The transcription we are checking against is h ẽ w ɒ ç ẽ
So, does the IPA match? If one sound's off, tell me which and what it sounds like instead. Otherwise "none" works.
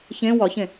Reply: h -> ç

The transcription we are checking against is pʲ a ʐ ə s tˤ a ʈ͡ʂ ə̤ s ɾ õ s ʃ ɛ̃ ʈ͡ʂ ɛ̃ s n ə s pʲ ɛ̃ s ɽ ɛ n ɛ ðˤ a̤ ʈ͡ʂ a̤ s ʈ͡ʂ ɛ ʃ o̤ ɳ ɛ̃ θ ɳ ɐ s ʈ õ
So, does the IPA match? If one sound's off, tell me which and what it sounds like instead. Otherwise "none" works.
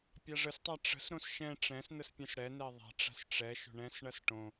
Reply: θ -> s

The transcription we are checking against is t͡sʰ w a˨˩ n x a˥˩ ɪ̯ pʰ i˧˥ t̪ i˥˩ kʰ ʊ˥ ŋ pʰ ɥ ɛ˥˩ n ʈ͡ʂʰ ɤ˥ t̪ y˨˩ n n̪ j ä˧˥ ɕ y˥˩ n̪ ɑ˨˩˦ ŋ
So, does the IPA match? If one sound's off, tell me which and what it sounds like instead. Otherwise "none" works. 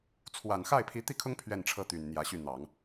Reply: none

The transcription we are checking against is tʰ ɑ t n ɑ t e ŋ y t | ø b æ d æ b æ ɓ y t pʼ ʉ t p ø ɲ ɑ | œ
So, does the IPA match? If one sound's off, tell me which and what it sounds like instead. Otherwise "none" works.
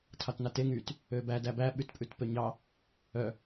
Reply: none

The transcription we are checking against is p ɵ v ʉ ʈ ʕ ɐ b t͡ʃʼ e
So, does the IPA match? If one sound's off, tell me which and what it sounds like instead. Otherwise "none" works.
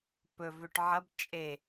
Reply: none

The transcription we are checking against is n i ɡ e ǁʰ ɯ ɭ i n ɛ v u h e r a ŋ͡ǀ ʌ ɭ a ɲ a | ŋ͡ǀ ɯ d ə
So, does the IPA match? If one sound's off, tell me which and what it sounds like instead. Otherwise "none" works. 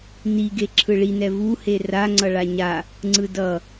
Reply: ə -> ʌ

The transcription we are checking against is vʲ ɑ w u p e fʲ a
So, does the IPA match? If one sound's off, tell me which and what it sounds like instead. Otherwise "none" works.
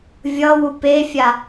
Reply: ɑ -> ʌ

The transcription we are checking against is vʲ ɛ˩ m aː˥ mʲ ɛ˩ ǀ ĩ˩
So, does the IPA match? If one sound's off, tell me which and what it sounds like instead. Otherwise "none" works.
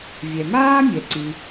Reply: none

